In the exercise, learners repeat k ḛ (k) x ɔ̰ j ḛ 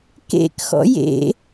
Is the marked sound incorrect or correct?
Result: correct